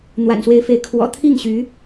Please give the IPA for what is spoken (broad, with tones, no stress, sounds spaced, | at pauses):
n̪ w a̰˨˩ n s w e˧˥ ɪ̯ f e˧˥ ɪ̯ kʰ w ɔ̰˨˩ t̪ʰ i˥˩ ŋ ɕ y˧˥